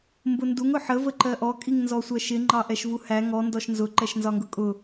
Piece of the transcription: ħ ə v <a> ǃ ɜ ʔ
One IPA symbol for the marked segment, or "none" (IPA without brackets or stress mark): ə